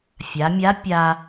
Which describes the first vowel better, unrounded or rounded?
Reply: unrounded